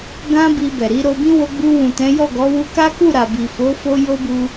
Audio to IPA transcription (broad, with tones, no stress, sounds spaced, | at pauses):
ɡ ã˦ b i˧ b ɛ˨ ɾ i˨˦ ɾ o˧ b ĩ˦ w o˧ ɡ͡b u˧ w ũ˨ t ɛ̃˨˦ j ɔ˦˨ ɡ ɔ˨˦ w u˧ k a˦ k u˦˨ ɾ a˨ b i˨ f o˨˦ f o˧ j o˦ b u˧